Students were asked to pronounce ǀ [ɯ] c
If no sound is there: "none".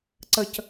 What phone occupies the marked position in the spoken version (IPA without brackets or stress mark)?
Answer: ə